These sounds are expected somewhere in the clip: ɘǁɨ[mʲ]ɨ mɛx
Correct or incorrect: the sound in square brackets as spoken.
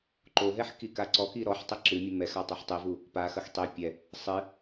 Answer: correct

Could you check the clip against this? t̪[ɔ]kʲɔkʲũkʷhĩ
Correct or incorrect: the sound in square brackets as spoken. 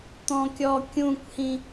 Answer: incorrect: ɔ̃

